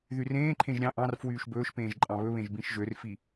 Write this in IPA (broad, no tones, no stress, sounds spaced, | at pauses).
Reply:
ð y r ẽː ǃʰ ẽ ʒ ɾʲ ɑ̃ ʔ ɑ̃ r f w yː ʃ b ɵː ʃ p ẽː ʒ ǃʼ ɑ̃ β ɵ β ẽ ʒ b ĩ ʃ ʒ ø r f i